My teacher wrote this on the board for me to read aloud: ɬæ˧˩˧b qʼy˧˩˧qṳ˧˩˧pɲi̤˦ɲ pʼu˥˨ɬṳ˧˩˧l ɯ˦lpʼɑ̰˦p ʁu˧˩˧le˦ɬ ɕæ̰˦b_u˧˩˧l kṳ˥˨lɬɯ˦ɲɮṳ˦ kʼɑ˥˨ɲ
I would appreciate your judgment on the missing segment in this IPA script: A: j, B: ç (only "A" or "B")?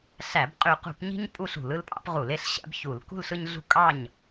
B